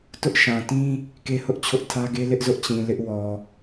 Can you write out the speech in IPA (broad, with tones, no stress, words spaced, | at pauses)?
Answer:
tʊ˦ʔʃã˨tĩ˦ | ke˦hʊ˦ʔt͡ɕʰʊ˦ʔ tʰä˦ɡe˦ lɪ˦ʔzʊ˦ʔt͡ɕĩ˨ lɪ˦ʔwɔ˨